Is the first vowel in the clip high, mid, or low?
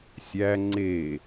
low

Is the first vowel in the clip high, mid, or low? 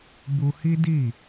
high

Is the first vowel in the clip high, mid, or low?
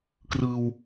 high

